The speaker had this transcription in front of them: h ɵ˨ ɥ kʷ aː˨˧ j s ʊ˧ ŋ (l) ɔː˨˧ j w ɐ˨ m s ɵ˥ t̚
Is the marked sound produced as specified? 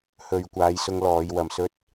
yes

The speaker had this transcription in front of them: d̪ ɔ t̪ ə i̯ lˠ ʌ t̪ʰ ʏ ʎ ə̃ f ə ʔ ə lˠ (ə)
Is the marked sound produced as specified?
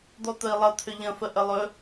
no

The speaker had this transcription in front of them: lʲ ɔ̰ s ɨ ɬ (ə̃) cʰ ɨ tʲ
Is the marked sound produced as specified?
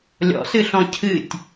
no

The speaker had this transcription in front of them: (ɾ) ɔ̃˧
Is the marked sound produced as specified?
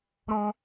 yes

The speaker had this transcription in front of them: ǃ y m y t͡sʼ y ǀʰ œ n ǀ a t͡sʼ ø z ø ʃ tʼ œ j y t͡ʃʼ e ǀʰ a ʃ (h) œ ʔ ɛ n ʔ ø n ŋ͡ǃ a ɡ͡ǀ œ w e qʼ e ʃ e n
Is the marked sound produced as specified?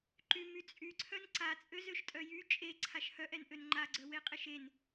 yes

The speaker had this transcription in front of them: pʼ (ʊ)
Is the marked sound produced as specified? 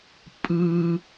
no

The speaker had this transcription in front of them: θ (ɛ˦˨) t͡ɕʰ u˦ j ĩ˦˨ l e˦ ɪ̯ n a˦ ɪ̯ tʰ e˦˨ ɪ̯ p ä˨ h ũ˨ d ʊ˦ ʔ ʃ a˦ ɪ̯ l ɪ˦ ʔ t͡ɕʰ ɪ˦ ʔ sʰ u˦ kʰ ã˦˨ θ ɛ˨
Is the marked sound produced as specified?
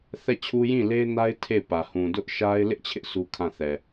yes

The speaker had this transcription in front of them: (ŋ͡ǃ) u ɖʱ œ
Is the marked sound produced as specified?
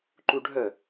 no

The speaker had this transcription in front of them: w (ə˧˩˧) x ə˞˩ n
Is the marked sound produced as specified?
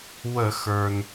yes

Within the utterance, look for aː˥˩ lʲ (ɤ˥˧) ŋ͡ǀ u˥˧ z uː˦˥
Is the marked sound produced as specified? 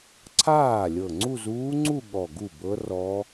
no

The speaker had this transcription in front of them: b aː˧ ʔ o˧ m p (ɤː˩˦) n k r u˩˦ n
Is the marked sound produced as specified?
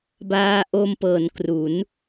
yes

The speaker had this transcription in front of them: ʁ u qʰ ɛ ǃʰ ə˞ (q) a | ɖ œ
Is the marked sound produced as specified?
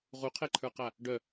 yes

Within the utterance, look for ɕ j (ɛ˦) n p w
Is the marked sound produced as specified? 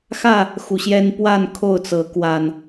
yes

